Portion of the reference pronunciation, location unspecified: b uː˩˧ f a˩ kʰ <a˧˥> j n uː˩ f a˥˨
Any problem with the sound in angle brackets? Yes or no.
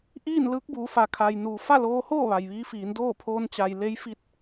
yes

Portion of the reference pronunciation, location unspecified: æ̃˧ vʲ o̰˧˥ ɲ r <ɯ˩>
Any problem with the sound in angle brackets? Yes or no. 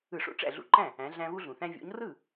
yes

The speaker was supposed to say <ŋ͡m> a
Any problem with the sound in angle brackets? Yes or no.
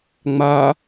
no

